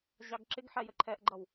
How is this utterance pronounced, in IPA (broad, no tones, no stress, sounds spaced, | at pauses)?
ʑ ɑ ɡ ǁ ɪ ɡ ħ ɛ j ə ǃʰ ɛ ʔ ɡ͡ǃ ʌ w